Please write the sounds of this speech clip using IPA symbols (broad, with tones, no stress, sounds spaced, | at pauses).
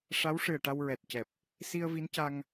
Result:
ʂ a˧˥ w ʂ ɨ˨˩ ə̯ ʈ a˧ w ɹ ɛ˨˩ t̚ c ɛ˨˩ p̚ | s i˧ ə̯ v i˧˥ n c a˧ ŋ